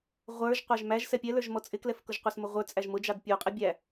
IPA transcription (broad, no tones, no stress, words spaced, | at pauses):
ʁʷə˞ʒ qʷɑʒmæʒ sɛpʲɛlə˞ʒmɔ t͡sʼɪklɛfkʊʒ qʷɑsmʊʁʷə˞ t͡sʼæʒmʊd͡ʒɑd pʲuqʼɪ bʲæ